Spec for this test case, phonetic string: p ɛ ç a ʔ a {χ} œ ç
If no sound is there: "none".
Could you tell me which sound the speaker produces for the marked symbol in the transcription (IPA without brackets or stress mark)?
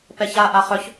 χ